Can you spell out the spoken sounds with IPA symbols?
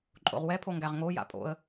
ǃʼ o̰ ʁ w ɛ pʰ o ŋ ɡ æ ʁ ŋ o j a̰ pʼ o̰ ə̯

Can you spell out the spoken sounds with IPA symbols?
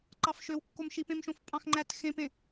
ǃ ɑ f ʃ ø w kː o m ʃ i p ẽ m ʃ õ f pʼ ɑ̃ x ŋ͡ǃ æ t x ẽ p ẽ

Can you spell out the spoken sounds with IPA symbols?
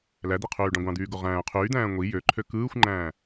l æ d̪ i qʰ yː ɖ ɑ̃ ɡʷ ɑ̃ d̪ yː ɡ o ʁ æ̃ː qʰ yː d̪ æ̃ː ŋʷ i j ø ǃʰ ø k ɯː xʷ ŋ͡ǃ æ̃ː

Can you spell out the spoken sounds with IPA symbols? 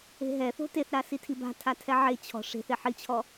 e̤ ɦ ɛ θ o̤ t e θ ɾ a s i tʰ i b a̤ tʰ a tʰ ɛ ʕ e t͡ɕʰ ɔ̤ ʂ e̤ θ e ħ i t͡ɕʰ ɔ

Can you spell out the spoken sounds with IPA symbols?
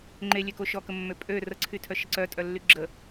ŋ͡ǃ e lʲ ø k o ʃ ɔ k ə mː ø pʼ ø r ə ǀʰ y tʰ œ ʃ ə ǀ œ tʼ œ lː y ɡ͡ǁ ə

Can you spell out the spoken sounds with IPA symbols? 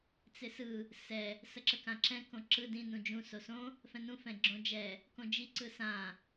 t͡s ɪ s ɯ | s ɛ | s ə ǁ ə k ã ǁ ɛ̃ k õ ǁ ɯ d ĩ n ũ d͡ʒ ũ s o s õ | f ɛ̃ n ũ f ɛ̃ ɡ͡ǁ õ d͡ʒ ɛ | k õ d͡ʒ i ǀ ɯ s ã

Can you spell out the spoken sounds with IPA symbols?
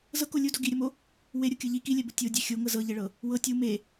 z ɤ k o lʲ u d o ɡ i ɾʲ ɔ m o | w e ɾʲ o kʲ ɤ ʎ i k i lʲ ɛ b u tʲ o dʲ e xʲ o ŋ ɤ z ɤ ʎ e ɭ ɤ | w ɤ tʲ u m e

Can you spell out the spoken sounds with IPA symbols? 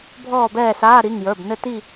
bʱ ɔː˥˨ b ɛː˥˨ s aː˧˥˧ ɾ i˩˧˩ ŋ j ə˞˩˧˩ b n ɘ˥˨ t i˥˨

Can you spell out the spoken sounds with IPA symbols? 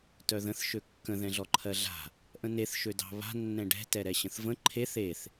t œ ð ə̃ θ ʃ ø kː ə̃ ð ɛ̃ ɮ ɔ ǃʰ ɜ ɮ a̤ | ʔ ə̃ n e θ ʃ ø d ɑ̤ β a̤ nː ɛ̃ ɖ ɛ̤ t ɛ ɾ ɛ ɕ ə̃ θ v ə̃ ǃʰ e θ e θ

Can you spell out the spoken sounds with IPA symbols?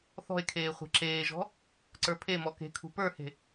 θ ɔ̤ e̯ kʰ eː χʷ e̤ ǁ eː ʒ ɔ̤ | ǀ ə˞ pʰ e m ɔ k e̤ kʰ ṳ p ə˞ h e̤

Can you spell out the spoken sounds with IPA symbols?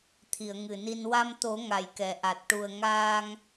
t̪ʰ i˨˩˨ ə̯ ŋ ɨ˨˩ n i˧ n w a˧ m t̪ o˨˩˦ ŋ a˨˩ j k ɛ˨˩˨ ʔ a˨˩ t̚ ʈ u˨˩ ə̯ ŋ aː˧ ŋ

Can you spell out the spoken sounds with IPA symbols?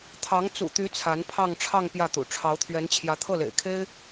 t̪ʰ ɑ˧˥ ŋ t͡s ṵ˨˩ t̪ y˧˥ t͡sʰ a˧˥ n pʰ ɑ˥˧ ŋ ʈ͡ʂʰ ɑ˥˧ ŋ p j ä˥˩ t̪ ṵ˨˩ ʈ͡ʂʰ ɑ˧˥ ʊ̯ t̪ʰ ɥ ɛ˧˥ n t͡ɕʰ j ä˧˥ t̪ʰ ɤ˥˩ l ḛ˨˩ ɪ̯ kʰ e˥ ɪ̯

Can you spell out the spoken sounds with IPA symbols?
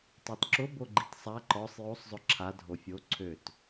tˤ i t ǁ ʊ b o ɡ͡ǃ i t sˤ a ǃ ɔ sˤ j o sˤ zˤ ʊ ǁʰ a dʱ o fʲ o ǀʰ ø t

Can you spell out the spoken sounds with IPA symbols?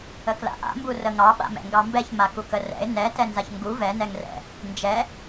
ə k l a̰ ʔ a̰ m b u r ə ŋ ɑ ɓ a̰ m ɛ̰ ŋ ɡ ɑ m b ɛ ç m a k u k ə r ɛ̰ ɪ̯ n ɛ t ɛ n z a ç ŋ ɡ u v ɛ n ɛ ŋ r ɛ̰ | n d͡ʒ ɛ

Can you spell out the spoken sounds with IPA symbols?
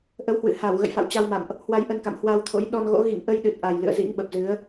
ʔ ə˨˦ w h w ɨ̰˧˨ h a˧˩ w ɣ ə̰˧˨ j f a̰˧˨ w t͡ɕ a˧ w m a̰˧˨ m ʔ | h w a˧ j ʔ ə˧ n k a̰˧˨ m h w a˧ w t̪ʰ o̰˧˥ j ɗ ɔ˧ n ɣ o̰˧˥ ɣ ḭ˧˨ ŋ ʔ ə˧ j ɗ ɨ˨˩ t̚ ʔ a˨˩ j l ɨ̰˧˨ ə̯ z ḭ˧˥ ŋ ɓ ə˨˩ p̚ z ɨ˨˦ ə̯

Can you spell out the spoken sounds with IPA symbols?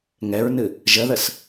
ŋ ɛ ɹ n ɨ | ʒ ə ð ə s

